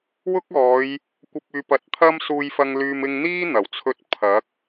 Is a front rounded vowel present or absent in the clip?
present